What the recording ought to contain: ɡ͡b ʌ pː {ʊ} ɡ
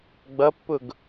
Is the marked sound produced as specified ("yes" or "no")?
yes